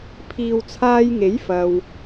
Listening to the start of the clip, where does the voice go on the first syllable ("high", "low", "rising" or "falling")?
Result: low